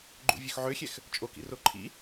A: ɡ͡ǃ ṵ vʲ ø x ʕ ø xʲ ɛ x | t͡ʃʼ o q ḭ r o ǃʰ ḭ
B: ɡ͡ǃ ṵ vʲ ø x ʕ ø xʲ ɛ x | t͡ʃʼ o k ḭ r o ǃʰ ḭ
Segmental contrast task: B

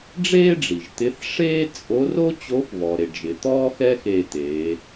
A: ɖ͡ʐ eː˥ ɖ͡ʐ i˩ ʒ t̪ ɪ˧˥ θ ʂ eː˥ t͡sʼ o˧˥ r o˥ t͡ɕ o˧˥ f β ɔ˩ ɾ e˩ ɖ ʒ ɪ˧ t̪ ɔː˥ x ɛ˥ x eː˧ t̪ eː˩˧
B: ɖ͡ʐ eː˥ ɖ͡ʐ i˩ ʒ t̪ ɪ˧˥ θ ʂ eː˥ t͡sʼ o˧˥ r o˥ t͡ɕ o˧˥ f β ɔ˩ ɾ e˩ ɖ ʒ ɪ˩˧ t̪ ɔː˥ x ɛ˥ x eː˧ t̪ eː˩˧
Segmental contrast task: B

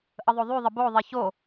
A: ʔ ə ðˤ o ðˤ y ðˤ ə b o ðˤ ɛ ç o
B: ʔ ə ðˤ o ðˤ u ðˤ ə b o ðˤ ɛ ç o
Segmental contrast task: A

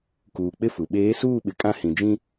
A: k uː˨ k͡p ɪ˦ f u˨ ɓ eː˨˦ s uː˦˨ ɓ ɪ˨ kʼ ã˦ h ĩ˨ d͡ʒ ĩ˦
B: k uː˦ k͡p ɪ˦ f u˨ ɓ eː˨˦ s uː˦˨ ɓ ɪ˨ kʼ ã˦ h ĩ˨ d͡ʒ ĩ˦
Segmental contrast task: A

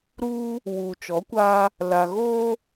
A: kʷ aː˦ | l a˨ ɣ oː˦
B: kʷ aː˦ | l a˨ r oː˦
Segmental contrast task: A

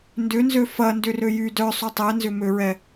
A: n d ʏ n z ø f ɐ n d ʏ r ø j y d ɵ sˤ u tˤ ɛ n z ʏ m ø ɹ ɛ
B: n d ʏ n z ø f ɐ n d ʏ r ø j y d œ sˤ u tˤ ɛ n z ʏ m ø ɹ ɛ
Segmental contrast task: B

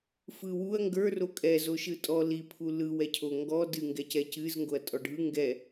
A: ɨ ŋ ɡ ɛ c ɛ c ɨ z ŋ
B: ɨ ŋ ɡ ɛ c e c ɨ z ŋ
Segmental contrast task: A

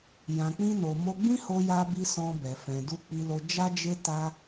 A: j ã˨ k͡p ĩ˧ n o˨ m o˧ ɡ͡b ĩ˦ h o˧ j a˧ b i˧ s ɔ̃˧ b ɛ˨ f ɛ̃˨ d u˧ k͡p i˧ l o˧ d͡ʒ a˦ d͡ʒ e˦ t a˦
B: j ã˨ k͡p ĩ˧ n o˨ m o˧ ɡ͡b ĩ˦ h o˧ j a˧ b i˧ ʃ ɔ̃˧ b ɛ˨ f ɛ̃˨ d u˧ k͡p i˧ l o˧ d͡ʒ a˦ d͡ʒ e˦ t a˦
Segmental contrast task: A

